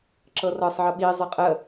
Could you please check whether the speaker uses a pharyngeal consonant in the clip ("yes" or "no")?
yes